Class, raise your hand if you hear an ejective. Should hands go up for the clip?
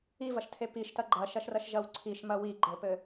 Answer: no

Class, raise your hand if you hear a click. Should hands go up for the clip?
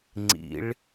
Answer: yes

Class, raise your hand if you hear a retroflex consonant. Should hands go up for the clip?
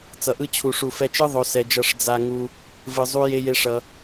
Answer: yes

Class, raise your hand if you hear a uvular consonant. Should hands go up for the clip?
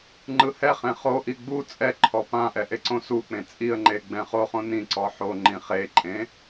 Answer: yes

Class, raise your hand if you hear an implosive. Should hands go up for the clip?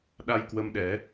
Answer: yes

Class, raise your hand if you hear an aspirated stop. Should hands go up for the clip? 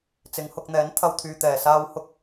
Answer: yes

